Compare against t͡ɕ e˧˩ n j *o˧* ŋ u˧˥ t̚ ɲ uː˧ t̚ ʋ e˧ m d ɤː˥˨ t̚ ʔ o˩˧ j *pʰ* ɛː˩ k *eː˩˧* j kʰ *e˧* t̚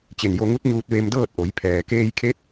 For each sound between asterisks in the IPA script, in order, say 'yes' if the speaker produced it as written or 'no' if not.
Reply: yes, yes, no, no

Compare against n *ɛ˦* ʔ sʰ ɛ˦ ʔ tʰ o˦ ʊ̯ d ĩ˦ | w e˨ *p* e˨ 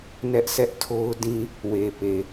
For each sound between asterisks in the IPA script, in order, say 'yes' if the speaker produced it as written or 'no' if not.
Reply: yes, yes

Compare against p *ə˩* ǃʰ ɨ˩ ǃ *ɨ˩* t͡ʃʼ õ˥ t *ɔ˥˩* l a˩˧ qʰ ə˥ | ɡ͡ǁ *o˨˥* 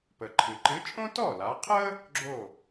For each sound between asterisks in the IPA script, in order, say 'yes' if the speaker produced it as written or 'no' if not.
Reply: yes, no, yes, no

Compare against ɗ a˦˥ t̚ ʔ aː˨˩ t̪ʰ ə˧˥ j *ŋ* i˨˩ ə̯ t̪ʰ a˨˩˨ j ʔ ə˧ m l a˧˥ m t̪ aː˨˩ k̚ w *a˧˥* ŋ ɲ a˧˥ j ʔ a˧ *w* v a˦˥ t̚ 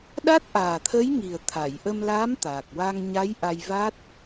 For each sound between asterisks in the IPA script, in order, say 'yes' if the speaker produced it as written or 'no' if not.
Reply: yes, no, no

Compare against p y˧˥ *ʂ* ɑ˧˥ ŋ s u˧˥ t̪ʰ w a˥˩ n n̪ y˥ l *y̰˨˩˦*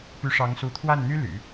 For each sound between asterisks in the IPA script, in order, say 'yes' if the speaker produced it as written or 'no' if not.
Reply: yes, yes

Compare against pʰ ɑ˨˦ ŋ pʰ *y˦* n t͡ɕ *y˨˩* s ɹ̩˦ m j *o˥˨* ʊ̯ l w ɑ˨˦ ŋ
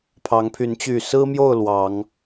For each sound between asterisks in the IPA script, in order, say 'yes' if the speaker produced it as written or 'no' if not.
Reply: no, yes, yes

